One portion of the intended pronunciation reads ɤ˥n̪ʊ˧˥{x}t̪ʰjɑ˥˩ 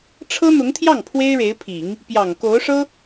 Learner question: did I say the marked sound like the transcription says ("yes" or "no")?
no